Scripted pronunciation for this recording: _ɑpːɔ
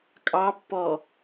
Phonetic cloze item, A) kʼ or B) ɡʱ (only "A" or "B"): A